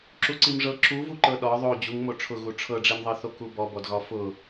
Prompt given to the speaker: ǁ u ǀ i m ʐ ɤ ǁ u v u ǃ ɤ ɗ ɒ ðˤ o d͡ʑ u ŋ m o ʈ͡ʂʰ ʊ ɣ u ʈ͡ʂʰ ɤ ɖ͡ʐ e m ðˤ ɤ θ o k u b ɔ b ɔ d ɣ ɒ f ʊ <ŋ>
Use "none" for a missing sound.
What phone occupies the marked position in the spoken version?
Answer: none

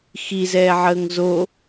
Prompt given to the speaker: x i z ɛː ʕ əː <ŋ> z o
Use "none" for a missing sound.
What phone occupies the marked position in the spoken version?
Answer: ŋ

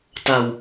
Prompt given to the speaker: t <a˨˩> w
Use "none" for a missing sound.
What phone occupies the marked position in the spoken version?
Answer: a˧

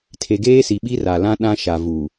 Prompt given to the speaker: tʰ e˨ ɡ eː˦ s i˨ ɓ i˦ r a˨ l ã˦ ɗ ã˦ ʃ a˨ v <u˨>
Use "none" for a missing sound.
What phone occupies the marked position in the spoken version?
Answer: u˨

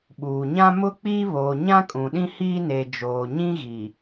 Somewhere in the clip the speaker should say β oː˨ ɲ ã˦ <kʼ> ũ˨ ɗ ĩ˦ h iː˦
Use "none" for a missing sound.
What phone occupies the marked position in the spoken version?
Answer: kʼ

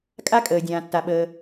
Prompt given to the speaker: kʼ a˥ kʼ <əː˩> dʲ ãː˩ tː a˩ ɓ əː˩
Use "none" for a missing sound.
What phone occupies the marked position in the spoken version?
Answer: əː˩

